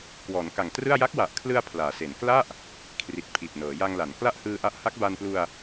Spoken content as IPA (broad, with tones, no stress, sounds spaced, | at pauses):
k w ɔː˩˦ n k a˨˩ ŋ t r ɯ˥˩ a̯ j a˦˥ k̚ w a˨˩ ʔ kʰ l ɯ˧ a̯ pʰ l aː˩˦ s e˩˦ n k l a˥˩ ʔ | kʰ r i˨˩ t̚ pʰ i˨˩ t̚ n ɤː˩˦ j a˧ ŋ l a˩˦ n k l a˥˩ ʔ h ɯː˧ ʔ a˦˥ ʔ h a˦˥ k̚ b a˧ n p l u˧ a̯